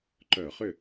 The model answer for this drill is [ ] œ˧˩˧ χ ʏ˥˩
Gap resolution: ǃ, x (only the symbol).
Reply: ǃ